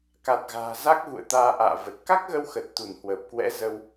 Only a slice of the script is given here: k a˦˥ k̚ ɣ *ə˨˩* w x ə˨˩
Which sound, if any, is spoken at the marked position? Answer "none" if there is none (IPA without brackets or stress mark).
ə˧